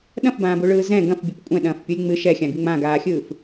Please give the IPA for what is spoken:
ɗɐ̃fbãːbuɭɯː zɛ̃ ɡɐ̃fbʲup kʷʼɛ̃ɗɐ̃ːfpʲulʲ ŋ͡mɨ ʃɛxʲãɡɨ ŋ͡mãɡaːxʲɯːf

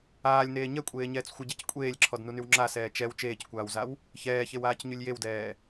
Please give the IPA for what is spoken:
aːlʲneː ɲɛkʷʼeːɲɛːt͡s xʷəɟec kʷʼeːlʲǁʰɔdnunyw ŋ͡ǁasɛː t͡ʃɛw t͡ʃeːckʷaːwzaw | çɛːçewaːcɲylʲ jewdɛː

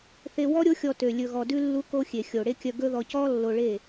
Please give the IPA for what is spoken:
θe˧wɔ˦ ɾʲo˦xʲɔ˧tø˨ lʲɵ˨ɣɔ˨dʉ˧ lːu˦ko˦ xʲe˨xʲo˨ɽe˦kʲœ˧ ɡɵ˦ðɔ˧ cɔ˦ lːo˧ɭe˦˨

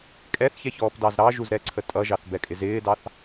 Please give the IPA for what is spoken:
kʼɛθçɛçɔːpdɑz ɾɑʒuzɾɛǀʰə tʼʌʒɑθbɛkʼɪ zɪːdɑθ

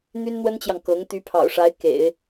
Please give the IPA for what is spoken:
n̪y˥nn̪wə˥nt͡ɕjɑ˨ŋ kɤ˧˥ŋ t̪y˧˥pʰɑ̰˨˩ʊ̯ʂa˧˥ɪ̯ kḛ˨˩˦ɪ̯

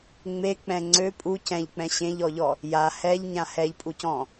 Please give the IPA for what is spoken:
ŋ͡mek͡pɛ̃ ŋ͡ǀø pʼu cɛ̃ʎk͡pɛ̃ ɕẽʎɔʎɔ | ja hɛʎɲã hɛʎpʼucɔ̃

